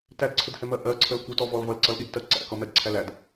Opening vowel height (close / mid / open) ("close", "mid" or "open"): open